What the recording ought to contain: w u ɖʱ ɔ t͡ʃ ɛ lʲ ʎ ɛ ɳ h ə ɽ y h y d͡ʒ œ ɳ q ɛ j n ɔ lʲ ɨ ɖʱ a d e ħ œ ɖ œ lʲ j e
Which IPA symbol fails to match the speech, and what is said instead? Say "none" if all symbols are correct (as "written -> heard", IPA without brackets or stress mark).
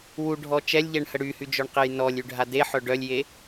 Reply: ɨ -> y